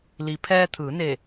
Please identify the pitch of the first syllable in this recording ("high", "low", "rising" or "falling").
low